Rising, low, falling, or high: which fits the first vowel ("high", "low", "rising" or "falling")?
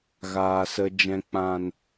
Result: low